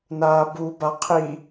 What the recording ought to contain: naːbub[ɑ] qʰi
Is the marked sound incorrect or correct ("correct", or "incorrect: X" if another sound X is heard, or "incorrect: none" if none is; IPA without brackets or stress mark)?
incorrect: a